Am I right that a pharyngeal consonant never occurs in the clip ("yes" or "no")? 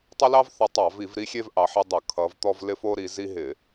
no